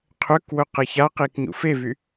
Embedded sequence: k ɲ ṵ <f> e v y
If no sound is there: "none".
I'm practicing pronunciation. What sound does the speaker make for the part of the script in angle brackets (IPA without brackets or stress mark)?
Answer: f